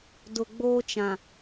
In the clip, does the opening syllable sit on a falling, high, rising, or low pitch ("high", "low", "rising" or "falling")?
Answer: low